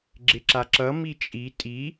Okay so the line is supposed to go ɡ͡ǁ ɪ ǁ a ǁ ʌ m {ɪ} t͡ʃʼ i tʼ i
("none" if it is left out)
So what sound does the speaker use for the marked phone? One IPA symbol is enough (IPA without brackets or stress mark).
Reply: i